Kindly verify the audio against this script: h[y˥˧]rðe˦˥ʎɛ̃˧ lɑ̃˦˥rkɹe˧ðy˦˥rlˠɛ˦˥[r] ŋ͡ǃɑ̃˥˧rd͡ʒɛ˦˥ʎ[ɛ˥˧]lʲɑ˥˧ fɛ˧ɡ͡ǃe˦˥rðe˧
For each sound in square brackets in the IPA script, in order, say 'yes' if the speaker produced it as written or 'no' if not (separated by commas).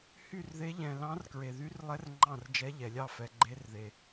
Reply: yes, yes, no